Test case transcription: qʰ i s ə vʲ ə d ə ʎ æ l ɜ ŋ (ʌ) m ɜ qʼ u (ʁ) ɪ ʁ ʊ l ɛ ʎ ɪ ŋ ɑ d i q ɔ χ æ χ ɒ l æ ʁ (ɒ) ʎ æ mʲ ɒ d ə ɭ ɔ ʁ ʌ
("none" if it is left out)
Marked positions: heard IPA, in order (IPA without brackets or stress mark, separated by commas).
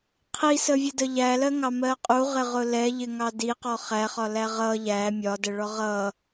ɑ, ʁ, ʌ